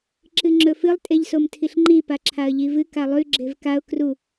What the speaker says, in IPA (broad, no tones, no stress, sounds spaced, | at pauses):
ǁ ɨ ŋ͡ǁ ɵ f ɨ lˠ tʼ e ʎ s o m tʰ i ɬ ŋ͡ǃ i p a ǁʰ a ə̯ ʎ i v ɨ k a lˠ ʉ ɡ͡ǁ e v k a ʊ̯ k r u